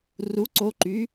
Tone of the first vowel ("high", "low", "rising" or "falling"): rising